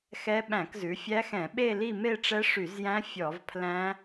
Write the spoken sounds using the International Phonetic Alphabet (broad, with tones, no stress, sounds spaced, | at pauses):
x ɛ˦˥ ɓ æ̃˧˩˧ k z ʉ˩˧ fʲ æ˦˥ x ɛ̃˧˩˧ ɓ e˥˧ l i˥˧ m e˥˧ ʈ͡ʂ ɛ˦˥ ʂ y˧˩˧ z j æ̃˦˥ fʲ ɔ˧˩˧ v pʰ l æ̃˦˥